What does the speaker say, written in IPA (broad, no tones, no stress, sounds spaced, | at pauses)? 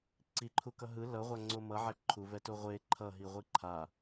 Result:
ǀ i ǃʰ u k ʌ ɦ ɯ l ʌ ʁʷ a ŋ͡ǀ o m ʌ ʕ ɛ ǃʰ u v ɛ t o ʁʷ e ǃʰ ʌ ɦ i ʁʷ i ǃʰ a